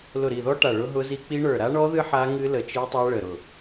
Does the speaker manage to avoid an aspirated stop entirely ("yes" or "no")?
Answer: yes